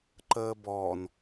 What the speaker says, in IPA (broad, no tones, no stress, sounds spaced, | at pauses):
ǃ əː b ɔː n